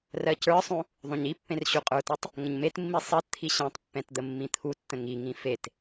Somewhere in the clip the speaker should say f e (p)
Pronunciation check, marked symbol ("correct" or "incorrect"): incorrect